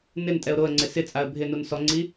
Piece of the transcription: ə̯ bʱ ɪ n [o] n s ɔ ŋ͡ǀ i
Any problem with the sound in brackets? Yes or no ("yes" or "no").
yes